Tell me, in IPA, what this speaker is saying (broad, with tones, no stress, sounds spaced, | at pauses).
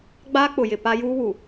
ɡ͡b aː˦ k͡p ʊ˨ j ɪ˨ p a˦ j uː˦ w u˨